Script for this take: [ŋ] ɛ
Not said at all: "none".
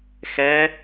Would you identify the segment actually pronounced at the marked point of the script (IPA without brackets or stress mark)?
x